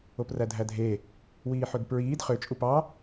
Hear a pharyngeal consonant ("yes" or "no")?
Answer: yes